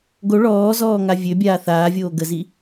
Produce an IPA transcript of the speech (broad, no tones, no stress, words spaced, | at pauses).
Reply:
ɡo ɭɔːzɔː ŋavʲøbʲaː θaːvʲoː ɡəzi